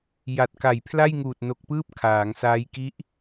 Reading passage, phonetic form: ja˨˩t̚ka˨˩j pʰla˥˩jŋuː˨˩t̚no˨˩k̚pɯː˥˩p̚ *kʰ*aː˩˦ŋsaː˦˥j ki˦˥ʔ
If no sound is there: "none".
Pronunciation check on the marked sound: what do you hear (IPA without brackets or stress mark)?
kʰ